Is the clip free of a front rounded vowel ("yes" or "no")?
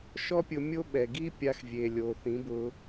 yes